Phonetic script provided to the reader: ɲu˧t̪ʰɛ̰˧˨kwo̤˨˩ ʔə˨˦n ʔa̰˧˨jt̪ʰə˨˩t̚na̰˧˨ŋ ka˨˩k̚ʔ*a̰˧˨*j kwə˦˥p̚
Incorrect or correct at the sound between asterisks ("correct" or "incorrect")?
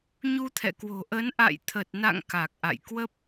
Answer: correct